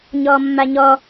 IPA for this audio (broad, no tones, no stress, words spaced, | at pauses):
ɲɔmːaɲɔ